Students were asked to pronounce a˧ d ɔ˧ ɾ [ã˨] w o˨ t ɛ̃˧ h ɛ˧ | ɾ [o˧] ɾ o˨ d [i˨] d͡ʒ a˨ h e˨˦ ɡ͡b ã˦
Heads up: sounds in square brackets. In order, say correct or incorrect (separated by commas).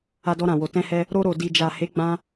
correct, correct, correct